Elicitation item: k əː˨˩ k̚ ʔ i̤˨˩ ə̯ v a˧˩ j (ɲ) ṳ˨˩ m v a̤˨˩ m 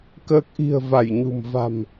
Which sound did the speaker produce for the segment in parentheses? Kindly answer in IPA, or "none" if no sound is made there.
ɲ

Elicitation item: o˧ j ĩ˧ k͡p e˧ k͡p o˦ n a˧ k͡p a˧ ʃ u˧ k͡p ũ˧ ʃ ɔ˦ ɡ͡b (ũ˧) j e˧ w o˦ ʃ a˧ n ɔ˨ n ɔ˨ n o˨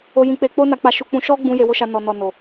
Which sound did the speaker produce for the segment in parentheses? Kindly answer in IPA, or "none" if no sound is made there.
ũ˧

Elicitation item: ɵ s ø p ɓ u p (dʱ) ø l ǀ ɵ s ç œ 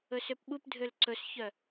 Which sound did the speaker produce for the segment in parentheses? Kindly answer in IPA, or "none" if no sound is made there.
dʱ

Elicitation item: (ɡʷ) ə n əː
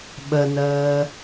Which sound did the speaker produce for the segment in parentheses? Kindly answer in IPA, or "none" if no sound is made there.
ɓ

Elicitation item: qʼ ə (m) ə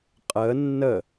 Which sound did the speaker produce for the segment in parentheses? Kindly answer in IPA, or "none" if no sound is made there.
nː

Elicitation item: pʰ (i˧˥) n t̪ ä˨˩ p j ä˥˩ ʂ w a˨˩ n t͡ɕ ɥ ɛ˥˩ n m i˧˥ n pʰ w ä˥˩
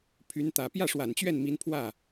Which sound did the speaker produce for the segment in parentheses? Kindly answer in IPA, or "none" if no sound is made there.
y˧˥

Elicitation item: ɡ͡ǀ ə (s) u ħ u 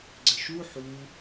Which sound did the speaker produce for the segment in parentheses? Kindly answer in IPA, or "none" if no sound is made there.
ʃ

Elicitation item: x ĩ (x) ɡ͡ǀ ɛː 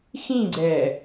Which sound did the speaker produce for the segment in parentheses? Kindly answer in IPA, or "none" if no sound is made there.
none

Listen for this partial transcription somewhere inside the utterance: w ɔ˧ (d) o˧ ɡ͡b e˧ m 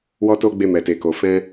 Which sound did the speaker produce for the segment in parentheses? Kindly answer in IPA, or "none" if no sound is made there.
t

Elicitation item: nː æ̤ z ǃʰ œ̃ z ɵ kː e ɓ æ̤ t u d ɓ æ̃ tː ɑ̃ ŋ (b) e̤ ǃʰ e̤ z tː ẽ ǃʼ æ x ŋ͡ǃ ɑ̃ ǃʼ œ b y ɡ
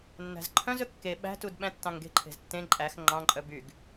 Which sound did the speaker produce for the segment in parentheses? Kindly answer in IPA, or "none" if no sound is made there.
ɡ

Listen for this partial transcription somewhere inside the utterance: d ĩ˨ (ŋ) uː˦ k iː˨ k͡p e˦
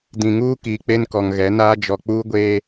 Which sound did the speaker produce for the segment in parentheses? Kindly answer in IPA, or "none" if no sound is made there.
ŋ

